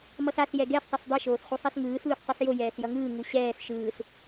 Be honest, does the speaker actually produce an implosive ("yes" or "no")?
no